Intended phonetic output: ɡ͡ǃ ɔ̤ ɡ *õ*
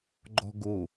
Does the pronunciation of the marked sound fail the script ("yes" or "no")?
yes